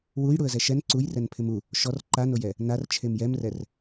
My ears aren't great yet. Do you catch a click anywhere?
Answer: yes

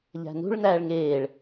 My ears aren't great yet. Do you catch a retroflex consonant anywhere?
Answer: yes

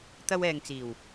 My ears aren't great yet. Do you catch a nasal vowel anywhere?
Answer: no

